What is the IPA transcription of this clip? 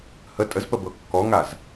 hə tʼəzpəbɤ kːɔŋaz

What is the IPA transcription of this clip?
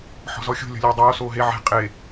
ħɔ̤zɔxʲo̤ lʲɔ̤lʲeːdˤoː soːɦe ʕe̤ qʼe

